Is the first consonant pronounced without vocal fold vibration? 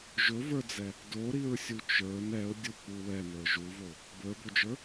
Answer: no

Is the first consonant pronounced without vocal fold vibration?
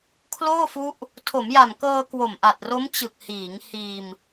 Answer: yes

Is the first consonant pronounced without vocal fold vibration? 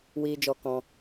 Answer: no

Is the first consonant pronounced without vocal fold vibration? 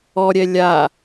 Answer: no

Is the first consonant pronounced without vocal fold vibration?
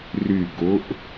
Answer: no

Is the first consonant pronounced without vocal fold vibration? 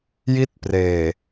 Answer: no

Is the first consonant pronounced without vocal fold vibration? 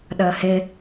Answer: no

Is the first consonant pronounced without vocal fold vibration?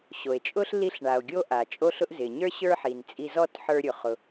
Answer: yes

